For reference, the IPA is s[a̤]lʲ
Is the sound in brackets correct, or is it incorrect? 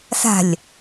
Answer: correct